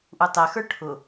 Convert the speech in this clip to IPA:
ʔ u tˤ ɛ x ə˞ ʈʰ ʊ

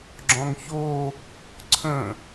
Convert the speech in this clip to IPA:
ɡ͡ǁ ɔ̃ ŋ ç o | ǀʰ ə̃

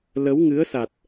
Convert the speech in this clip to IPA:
l ə˨˦ w ŋ ɨ˨˦ ə̯ s a˨˩ t̚

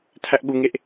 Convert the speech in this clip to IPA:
tʰ æ ʔ ɠ u ŋ e ʔ

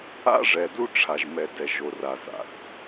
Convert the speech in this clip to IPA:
a̰˦ ʐ ɛ˨ d u˦ ʈ͡ʂʰ a˨ ʒ m ɛ˨ d ɛ˨ ʒ o˨ r a˨ z a̰˨ θ

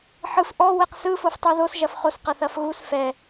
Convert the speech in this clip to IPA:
ħ ɯ f ʔ ɔ w ɛ q s ɯ f o f tˤ u ð o s ʒ ɐ f χ o s q ɐ θ ɐ f ɣ u s f ɛ

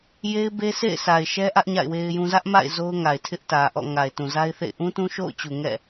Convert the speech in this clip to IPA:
j e˦ ɪ̯ b e˦ s ḛ˦˨ ɪ̯ s a˨ ɪ̯ ʃ ɛ˦ ʔ ä˦ ʔ ɲ a̰˦˨ ɪ̯ w e˦ ɪ̯ j ũ˦ z ä˦ ʔ m a̰˦˨ ɪ̯ z o˦ ʊ̯ ŋ a˨ ɪ̯ tʰ ɪ˦ ʔ t ä˨ ʔ ɔ̰˦˨ ŋ a˨ ɪ̯ t ũ˨ z a˦ ɪ̯ θ ḛ˦˨ ɪ̯ ʔ ũ˦ t ũ˦ ʃ o̰˦˨ ʊ̯ t͡ɕ u˨ ŋ ɛ̰˦˨

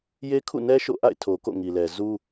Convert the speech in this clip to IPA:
j e˦ kʰ ṵ˦˨ n ɛ˦ ʃ o̰˦˨ ʔ a̰˦˨ ɪ̯ tʰ o˨ k o̰˦˨ ŋ i˨ l ɛ˨ z u˦

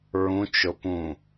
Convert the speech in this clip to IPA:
ɹ ũ t͡ʃ ʊ p ũ

